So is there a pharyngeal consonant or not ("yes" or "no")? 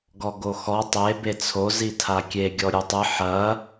yes